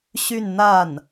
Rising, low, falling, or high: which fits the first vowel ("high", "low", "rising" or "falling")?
falling